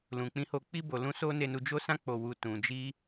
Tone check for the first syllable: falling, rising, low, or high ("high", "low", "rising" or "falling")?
low